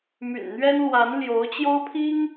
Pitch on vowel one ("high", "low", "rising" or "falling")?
low